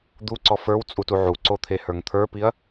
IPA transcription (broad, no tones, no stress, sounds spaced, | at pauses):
d̪ u ǀ ɔ f ə˞ w t͡sʼ u t u ʕ u ǀ o t̪ʰ e h ə˞ ŋ t̪ʰ ə˞ p i ɐ̯